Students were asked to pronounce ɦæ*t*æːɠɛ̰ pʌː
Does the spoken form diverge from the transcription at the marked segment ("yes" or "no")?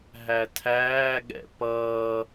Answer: yes